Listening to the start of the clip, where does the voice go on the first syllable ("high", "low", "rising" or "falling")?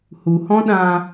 low